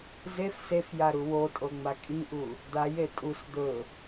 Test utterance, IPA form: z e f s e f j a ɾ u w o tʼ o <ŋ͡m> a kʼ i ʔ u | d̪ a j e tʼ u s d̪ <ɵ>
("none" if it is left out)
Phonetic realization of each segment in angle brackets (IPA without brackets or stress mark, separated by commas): ŋ͡m, ɵ